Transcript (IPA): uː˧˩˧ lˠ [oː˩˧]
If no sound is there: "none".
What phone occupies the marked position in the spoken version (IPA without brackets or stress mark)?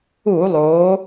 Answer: oː˩˧